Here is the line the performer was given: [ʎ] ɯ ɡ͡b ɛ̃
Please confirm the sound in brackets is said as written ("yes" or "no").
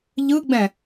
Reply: yes